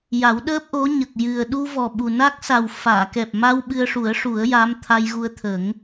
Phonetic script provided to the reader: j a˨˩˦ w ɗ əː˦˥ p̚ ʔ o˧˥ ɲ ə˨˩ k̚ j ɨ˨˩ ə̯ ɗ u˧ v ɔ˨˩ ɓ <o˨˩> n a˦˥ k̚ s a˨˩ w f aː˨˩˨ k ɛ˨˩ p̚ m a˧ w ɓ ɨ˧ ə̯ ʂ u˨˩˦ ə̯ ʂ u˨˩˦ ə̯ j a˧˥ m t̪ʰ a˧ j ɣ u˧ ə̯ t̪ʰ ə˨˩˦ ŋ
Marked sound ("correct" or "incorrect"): incorrect